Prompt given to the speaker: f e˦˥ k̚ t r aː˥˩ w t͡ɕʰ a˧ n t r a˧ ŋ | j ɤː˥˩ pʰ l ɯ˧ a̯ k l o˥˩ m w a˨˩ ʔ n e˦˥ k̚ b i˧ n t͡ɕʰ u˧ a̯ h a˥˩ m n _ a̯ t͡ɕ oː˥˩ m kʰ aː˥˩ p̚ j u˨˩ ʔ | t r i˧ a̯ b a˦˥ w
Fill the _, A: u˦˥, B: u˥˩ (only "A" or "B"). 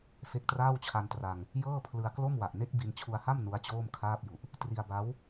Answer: A